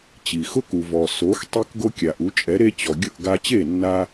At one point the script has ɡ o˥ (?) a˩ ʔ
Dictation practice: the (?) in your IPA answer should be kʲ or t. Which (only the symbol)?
kʲ